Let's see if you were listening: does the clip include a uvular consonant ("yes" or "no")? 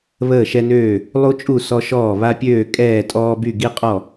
yes